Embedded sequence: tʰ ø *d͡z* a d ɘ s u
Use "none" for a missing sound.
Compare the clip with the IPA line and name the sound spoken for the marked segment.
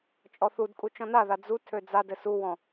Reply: d͡z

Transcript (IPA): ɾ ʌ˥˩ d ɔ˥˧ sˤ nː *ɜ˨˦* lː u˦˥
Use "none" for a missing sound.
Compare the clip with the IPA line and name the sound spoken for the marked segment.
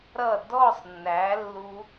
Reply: æ˨˦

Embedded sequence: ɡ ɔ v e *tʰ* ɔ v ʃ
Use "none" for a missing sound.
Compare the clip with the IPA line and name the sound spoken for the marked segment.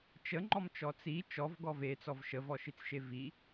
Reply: t͡s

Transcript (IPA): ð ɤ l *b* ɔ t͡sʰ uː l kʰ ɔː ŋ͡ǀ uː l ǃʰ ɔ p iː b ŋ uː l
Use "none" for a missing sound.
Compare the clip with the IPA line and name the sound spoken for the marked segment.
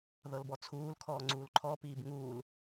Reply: b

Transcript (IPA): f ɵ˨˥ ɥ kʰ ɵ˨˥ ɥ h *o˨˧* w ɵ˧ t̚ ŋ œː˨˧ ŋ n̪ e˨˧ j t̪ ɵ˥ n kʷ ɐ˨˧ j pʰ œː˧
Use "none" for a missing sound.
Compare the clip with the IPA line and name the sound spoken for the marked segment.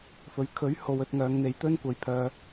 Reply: o˨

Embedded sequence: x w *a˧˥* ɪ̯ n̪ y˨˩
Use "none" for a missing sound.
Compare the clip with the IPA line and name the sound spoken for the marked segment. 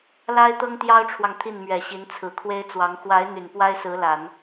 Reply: a˧˥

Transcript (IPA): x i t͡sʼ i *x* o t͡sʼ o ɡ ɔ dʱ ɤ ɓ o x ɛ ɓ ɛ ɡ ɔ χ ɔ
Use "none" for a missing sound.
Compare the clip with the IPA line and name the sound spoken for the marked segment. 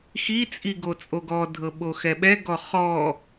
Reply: ɡ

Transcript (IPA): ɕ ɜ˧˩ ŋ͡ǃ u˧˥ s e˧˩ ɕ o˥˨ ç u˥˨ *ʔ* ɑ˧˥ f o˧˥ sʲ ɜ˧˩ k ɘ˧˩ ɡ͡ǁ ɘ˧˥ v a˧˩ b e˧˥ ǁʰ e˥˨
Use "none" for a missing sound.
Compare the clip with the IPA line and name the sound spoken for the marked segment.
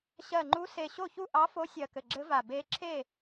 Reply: ʔ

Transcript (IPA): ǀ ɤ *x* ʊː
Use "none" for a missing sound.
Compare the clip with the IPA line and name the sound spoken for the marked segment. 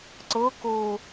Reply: k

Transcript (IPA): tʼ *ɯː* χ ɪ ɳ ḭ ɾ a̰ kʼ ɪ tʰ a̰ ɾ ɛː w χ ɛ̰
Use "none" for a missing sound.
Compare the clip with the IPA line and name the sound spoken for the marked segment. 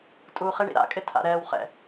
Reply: uː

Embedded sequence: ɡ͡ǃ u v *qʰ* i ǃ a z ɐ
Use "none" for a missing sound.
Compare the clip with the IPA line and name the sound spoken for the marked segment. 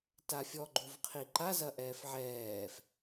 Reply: qʰ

